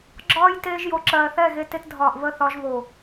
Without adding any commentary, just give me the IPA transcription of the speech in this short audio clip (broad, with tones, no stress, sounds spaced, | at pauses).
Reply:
ɡ͡ǁ ɒː˦ j t eː˧ ʒ j o˨ ǁ ɜː˨ θ ɛ˦˨ ɣ e˧ t e˧ t dʱ ɒː˨ ʔ β ə˦˨ θ ɒ˧ ʒ β o˨